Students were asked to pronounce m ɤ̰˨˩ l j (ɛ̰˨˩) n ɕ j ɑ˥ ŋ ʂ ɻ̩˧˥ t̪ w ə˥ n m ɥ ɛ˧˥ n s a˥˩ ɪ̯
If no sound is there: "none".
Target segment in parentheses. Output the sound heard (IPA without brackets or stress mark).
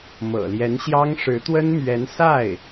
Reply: ɛ˧˥